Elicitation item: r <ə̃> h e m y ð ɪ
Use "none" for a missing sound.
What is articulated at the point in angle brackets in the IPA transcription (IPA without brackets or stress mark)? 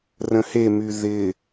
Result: ə̃